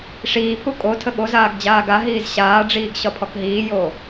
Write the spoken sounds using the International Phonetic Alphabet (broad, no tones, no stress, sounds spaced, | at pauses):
ʂ iː pʰ u kʼ o tʰ ə ɠ o z aː ɡ d͡ʑ aː ɡ a ɦ iː z ɕ aː ɖ͡ʐ iː ɡ ɕ ɒ pʰ ɔ k ɦ iː j oː